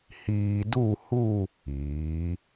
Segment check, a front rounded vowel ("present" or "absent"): absent